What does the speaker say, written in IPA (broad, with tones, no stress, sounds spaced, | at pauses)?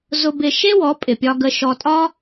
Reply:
z ʊ˧ b ɪ˧ ʃ e˥ w ɔ˩˥ pʼ ɪ˩ pʲ ɒ˧ ɡ ə˧ ʃ ɔ˧ tʼ ɒ˥